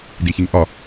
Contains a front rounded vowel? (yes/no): no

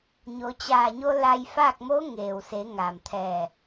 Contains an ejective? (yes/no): no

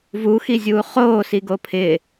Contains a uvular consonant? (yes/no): yes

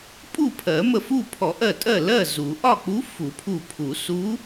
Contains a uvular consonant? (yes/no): no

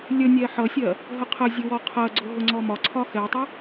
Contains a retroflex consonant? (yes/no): no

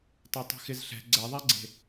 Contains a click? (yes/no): yes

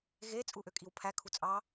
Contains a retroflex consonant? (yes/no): no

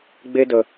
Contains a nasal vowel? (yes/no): no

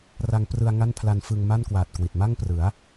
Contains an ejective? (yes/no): no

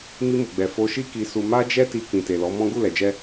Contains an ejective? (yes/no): no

